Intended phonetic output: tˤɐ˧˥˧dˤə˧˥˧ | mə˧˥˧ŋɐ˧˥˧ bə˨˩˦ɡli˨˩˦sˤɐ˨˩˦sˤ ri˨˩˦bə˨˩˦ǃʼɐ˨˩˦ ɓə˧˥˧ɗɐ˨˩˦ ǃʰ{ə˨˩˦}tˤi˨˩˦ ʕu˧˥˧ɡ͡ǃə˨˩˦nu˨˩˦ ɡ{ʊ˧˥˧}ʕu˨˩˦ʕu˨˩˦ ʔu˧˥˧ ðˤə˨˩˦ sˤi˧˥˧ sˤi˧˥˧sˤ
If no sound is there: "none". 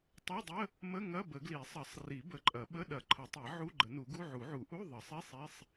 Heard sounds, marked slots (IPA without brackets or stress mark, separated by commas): ə˨˩˦, u˧˥˧